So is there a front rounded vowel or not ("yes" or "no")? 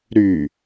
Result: yes